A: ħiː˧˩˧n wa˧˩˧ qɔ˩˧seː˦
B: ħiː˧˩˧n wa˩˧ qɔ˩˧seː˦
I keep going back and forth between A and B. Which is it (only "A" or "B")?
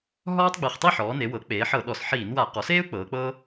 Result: A